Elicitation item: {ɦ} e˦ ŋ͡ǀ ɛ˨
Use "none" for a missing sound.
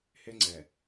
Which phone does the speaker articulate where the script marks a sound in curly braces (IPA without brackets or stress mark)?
h